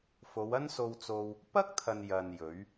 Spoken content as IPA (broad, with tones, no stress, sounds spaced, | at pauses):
f o˨˧ w ɐ˥ n s o˧ w t͡s o˧ w | p ɐ˥ k̚ t̪ʰ ɐ˨ n j ɐ˨ n j ɵ˨˧ ɥ